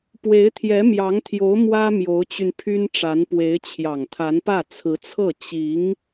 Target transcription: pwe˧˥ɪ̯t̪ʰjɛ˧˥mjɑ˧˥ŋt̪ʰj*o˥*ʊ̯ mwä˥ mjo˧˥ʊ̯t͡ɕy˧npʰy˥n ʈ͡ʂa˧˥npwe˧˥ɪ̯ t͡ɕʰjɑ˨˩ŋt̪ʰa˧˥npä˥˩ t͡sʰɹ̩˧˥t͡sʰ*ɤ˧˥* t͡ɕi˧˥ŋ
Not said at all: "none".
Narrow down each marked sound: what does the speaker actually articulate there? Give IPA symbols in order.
o˧˥, ɤ˥˩

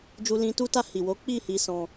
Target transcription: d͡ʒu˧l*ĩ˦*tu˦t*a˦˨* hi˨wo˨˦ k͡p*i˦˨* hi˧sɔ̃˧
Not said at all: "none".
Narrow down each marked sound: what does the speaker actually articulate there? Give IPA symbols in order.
ĩ˧, a˦˨, i˦˨

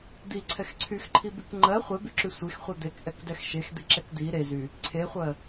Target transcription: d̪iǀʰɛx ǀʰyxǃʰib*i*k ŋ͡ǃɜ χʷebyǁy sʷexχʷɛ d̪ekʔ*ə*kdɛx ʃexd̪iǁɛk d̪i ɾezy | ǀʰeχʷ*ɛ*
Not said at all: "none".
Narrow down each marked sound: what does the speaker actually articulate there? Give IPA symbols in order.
y, ɛ, ɜ

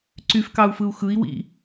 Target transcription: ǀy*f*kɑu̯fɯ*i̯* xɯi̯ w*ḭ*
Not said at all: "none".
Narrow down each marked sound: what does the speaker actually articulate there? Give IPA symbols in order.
f, u̯, ḭ

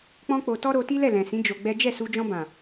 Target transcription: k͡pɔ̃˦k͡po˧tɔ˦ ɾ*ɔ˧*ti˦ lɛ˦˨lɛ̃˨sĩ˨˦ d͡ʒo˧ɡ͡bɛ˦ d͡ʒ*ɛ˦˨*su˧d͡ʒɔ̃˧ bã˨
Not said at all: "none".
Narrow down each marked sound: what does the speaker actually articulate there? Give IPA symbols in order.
o˧, ɛ˦˨

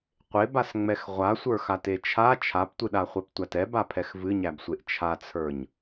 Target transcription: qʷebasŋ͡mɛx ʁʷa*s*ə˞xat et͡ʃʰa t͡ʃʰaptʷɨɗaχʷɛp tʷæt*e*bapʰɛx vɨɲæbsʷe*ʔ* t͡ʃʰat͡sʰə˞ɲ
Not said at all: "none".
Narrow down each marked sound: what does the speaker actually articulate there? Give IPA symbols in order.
sʷ, ɛ, ʔ

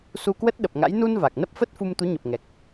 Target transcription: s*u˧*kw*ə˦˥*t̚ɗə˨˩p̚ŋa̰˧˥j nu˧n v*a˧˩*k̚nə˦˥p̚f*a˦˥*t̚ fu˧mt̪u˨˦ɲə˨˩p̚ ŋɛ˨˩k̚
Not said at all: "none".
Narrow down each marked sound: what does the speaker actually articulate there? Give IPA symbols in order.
u˧, ə˦˥, a˨˩, ə˦˥

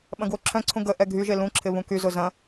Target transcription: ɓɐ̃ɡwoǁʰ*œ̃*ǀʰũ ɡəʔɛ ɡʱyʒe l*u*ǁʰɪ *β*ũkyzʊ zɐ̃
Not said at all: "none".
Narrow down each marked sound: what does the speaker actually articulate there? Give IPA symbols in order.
œ̃, ũ, β

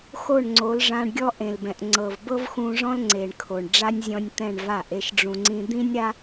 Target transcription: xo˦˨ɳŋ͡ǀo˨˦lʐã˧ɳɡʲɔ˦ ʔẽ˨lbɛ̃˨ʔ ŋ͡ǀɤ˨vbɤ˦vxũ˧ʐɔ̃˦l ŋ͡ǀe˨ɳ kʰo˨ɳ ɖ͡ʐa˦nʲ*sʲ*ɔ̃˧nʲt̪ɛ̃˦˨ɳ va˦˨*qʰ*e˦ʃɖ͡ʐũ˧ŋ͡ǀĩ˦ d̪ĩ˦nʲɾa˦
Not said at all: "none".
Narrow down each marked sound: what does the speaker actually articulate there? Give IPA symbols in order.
zʲ, ʔ

